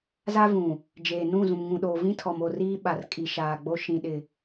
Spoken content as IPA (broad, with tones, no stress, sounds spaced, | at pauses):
z a˦ v ũ˨ | d͡ʒ eː˨ n ũ˦˨ z ũ˨ m ŋ ũ˨ ɗ oː˨ v ĩ˦ tʰ ɔ˨ m o˦˨ r iː˦ ɓ a˨ r kʼ i˨ ʃ aː˨ ɡ͡b o˦ ʃ ĩ˦ ɗ ɪ˦